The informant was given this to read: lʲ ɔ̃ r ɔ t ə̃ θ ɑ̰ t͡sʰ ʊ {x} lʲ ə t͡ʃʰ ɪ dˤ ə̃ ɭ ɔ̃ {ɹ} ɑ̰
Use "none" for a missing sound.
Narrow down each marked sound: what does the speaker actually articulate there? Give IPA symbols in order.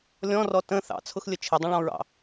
x, ɹ

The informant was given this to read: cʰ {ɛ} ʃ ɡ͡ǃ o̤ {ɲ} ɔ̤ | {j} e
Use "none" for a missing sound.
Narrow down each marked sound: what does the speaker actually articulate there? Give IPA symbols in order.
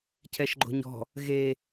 ɛ, ɲ, ɣ

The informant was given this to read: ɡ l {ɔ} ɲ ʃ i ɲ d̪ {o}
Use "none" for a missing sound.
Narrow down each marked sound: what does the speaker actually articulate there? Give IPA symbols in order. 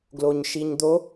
o, o

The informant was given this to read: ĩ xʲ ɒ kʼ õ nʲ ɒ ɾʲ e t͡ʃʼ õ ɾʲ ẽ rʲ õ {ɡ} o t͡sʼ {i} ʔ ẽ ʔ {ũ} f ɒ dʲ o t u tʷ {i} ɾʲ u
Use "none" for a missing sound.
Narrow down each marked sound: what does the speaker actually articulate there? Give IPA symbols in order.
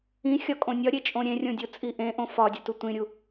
dʲ, i, õ, ĩ

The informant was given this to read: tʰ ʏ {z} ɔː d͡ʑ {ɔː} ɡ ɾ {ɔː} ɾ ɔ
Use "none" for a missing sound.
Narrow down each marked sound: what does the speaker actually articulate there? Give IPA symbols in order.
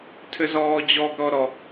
z, ɔ, ɔ

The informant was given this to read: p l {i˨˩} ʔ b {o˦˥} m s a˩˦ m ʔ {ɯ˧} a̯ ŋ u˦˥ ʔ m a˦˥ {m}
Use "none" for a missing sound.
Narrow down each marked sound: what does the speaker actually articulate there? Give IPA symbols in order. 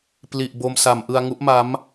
i˨˩, o˧, ɯ˧, m

